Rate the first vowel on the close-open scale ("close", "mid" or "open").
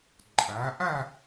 open